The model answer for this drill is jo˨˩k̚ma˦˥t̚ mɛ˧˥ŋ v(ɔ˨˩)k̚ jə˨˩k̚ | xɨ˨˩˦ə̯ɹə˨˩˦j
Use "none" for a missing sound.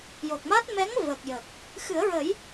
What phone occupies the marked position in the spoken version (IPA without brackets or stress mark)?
ə˨˩